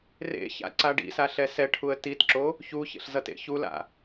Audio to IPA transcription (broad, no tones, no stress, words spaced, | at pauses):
rḛça̰ ǀaɖḭsa ɬɛsɛʈʰuə̯ titǁo | çuçḛɬ zʌtḛçula̰